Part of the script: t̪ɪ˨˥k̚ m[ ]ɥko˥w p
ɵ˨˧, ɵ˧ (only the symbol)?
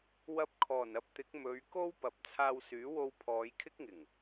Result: ɵ˨˧